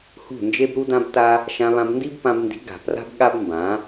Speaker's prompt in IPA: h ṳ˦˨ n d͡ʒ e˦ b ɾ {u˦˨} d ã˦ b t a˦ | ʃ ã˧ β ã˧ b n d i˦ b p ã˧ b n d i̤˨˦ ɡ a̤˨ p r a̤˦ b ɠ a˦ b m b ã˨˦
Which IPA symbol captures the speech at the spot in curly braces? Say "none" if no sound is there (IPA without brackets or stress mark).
u˦